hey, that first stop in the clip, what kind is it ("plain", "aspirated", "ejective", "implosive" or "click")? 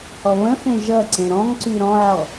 click